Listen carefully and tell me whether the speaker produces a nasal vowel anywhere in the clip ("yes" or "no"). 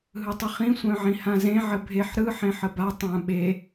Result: yes